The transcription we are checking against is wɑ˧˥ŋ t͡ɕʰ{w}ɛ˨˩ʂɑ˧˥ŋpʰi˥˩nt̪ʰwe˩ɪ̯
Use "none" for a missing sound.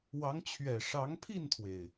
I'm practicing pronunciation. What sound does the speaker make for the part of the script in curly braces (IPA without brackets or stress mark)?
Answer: ɥ